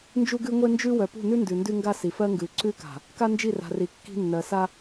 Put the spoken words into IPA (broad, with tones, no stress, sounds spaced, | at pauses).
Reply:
n d͡ʒ u˦ ɡ ʉ˦ ŋʷ e˦ n d͡ʒ ʉ˦ w œ˨ p ṳ˦˨ n ʉ˦ n d ʉ˨ n d ʉ˦ ŋ ɡ a˦ s i˨ f ɜ˦ ŋ ɡ ʉ˨ ǀ ʉ˦ k a̤˨ | k a˦ n d͡ʒ i˦˨ r a̤˨ r i˨ kː i̤˦ nː ɜ˨ s a˦